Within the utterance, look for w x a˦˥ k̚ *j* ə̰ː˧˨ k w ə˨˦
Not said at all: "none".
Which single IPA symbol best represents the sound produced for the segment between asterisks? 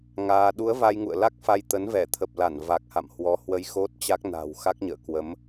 ɲ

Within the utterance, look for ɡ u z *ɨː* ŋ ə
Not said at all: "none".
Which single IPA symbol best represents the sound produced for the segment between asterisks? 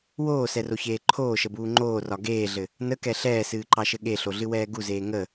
eː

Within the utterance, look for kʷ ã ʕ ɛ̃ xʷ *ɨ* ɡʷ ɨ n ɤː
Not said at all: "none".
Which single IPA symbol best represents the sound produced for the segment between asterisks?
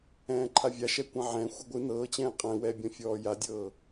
ɨ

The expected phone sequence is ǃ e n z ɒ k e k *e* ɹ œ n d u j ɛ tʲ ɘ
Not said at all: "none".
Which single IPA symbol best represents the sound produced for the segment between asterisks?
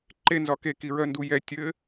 i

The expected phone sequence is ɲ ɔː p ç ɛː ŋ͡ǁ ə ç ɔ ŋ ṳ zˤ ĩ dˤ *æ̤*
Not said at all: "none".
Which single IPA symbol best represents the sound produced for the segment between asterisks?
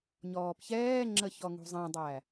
æ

